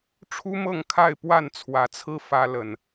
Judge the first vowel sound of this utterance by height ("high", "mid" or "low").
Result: high